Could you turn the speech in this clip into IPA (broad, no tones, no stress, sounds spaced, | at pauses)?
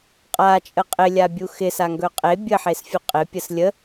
qʼ a t͡ʃʼ ə qʼ ɪ lʲ a bʲ u x ɪ s a ŋ ɡ ɵ qʼ e bʲ ə ħ e s fʲ u qʼ ɪ pʲ ə s lʲ ə